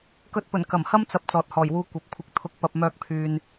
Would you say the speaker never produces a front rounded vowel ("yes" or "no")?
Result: no